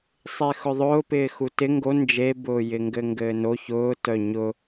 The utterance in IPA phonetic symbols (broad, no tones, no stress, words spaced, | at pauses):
sˤexʊðˤʊːpɪː xutɪ ŋɡo nd͡ʒebʊː jɪŋɡɘŋɡɘːno çʊːtœ ɲʊ